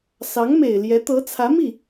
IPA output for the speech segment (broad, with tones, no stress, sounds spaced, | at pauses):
s ɑ˧˥ ŋ m e˨˩ ɪ̯ l j ɛ˧˥ t̪ ɤ˧˥ t͡sʰ ä˧˥ m i˥˩